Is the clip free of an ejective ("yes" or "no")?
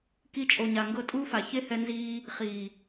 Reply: no